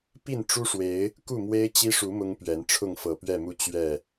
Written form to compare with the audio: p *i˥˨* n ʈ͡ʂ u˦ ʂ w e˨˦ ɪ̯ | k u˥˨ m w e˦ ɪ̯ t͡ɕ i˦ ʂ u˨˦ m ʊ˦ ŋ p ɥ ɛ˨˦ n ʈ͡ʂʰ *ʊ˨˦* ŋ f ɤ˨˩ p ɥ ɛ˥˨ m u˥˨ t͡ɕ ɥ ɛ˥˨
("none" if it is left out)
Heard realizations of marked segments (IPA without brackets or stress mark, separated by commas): i˥˨, ʊ˥˨